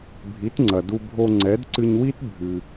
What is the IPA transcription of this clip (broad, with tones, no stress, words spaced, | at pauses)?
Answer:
bʱi˩˥tŋ͡ǀɐ˩ du˧ bʱo˧ŋ͡ǀɛ˩˥dǀɨ˧ɲwi˥t bʱɨ˩